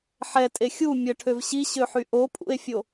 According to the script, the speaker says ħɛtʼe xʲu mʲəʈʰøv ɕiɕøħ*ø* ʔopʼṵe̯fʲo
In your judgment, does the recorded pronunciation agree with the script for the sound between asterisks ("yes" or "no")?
no